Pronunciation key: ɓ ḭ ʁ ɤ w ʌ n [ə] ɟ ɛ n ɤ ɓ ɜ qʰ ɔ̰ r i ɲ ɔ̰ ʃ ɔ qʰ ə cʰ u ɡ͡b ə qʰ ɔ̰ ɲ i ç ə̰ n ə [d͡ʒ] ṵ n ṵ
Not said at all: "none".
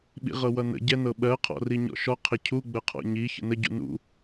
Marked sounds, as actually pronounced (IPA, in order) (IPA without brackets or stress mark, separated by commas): ə̰, ɟ